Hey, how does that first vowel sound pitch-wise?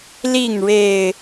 falling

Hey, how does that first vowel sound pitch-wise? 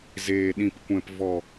low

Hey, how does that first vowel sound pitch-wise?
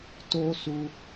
high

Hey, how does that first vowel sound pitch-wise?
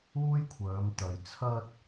high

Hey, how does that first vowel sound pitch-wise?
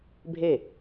falling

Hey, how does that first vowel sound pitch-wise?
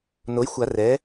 rising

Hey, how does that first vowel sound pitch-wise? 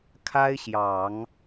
high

